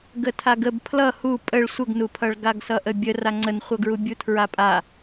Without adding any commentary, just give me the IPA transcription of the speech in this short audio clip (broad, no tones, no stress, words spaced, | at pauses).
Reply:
ɡətʰaɡəb pʰlʌ hu pʼəɭ sʷəɡnupʰʌɭ ɡaɡsʌʔəbʲə raŋ͡ǀənχʷʌɡɹu bʲutʰɹapʼa